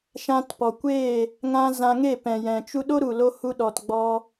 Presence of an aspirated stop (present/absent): absent